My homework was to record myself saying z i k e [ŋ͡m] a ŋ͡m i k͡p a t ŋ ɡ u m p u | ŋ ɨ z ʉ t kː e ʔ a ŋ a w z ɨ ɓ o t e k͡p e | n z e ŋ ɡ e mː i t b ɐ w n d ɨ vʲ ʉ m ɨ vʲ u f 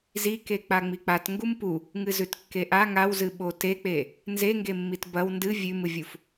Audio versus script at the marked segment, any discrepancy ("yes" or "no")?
yes